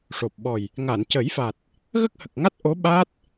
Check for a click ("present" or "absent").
absent